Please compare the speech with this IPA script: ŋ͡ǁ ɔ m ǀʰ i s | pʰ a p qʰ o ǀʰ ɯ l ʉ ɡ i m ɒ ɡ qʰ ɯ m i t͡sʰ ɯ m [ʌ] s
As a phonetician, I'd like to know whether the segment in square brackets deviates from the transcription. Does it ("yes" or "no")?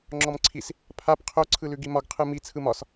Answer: yes